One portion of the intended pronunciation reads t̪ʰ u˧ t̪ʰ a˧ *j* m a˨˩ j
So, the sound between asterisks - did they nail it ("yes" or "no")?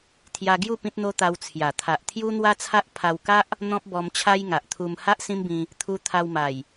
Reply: no